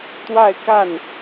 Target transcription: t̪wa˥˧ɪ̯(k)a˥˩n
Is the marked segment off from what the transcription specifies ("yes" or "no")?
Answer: no